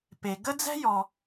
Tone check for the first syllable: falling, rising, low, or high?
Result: low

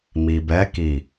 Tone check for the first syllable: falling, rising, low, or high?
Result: low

